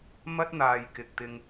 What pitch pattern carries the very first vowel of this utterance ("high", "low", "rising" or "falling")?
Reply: high